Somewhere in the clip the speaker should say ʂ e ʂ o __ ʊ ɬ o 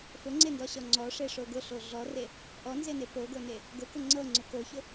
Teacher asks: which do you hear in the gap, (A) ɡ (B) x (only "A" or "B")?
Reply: A